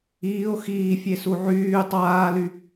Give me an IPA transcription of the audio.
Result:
iː o̯ x iː fʲ e s u ʕ yː tˤ aː l y

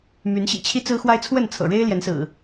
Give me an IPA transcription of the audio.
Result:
m y˨˦ n ɕ ḭ˨˩ t͡ɕʰ i˦ t͡s ɹ̩˦ x w a˦ ɪ̯ t͡sʰ w ə˥˨ n t͡sʰ ɤ̰˨˩ ɻ e˦ ɪ̯ l j ɛ˨˦ n s ɹ̩˨˩

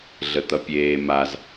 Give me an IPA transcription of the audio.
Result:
ɮ ə t̪ ʌ pʲ eː m a z

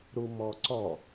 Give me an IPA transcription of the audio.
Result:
ɾ u m ɔ ǀ ɔ

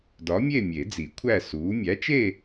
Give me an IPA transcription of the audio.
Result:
d ɒ˨˥ mʲ e˥˧ mʲ e˨˩˦ d͡z i˨˩˦ kʷʰ æ˥˧ s uː˨˥ mʲ æ˨˥ t͡ʃ e˥˧

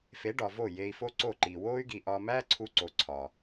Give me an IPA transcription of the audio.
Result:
f e˨˦ ɖ ɒ˨ v o˦˨ j eː˧ i̯ f o˦ ǀ o˦˨ ǃ iː˨ w oː˦ y̯ ɡ iː˨ ʔ ɒː˧ m æː˦ ǀʰ u˧ ǀ o˨˦ ǀʰ ɒː˨

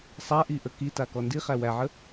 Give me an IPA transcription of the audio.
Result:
sˤ a ʔ i ʔ ə k i t a k ɔ n d i χ æ w æ ʕ ə

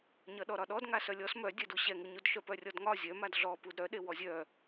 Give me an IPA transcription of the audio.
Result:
ɲ ʌ ɗ ɔ ɾ ɒ ɗ ɔ d ŋ a s œ lʲ ɔ s m œ dʲ ɛ d u ɕ ɛ ŋ u ɲ u d ʃ œ p œ rʲ ɔ d ŋ ɒ zʲ œ m a d ɮ ɔ p u d ɾ œ ɗ e w ɔ zʲ œ

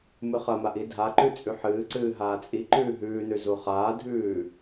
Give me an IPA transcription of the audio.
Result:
m ɨ χ ɐ m a ʔ i dʱ a ǃ ʉ t͡sʼ ʉ ħ ɨː ǀ ɨː ɦ aː t͡sʼ i ǃ ʉː ɦ ʉː n ʉ z u χ aː dʱ ʉː

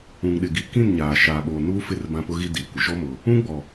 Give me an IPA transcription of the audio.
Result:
ũ˨ ŋ ɗ ɪ˨ ɡ i˨ k ĩ˦˨ n ɲ aː˨ ʃ aː˨ ɓ oː˨ n uː˦ f ɪ˦˨ r b ã˦ p ʊ˦ ɣ i˦ d iː˨ kʷ ɪ˨ ʃ ɔ˦ m ʊ˨ | ũ˦ ɡ͡b ɔ˨

